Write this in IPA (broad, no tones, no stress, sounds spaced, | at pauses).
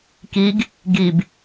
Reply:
k i ɡ | ɡ i b